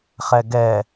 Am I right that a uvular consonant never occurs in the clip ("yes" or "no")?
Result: no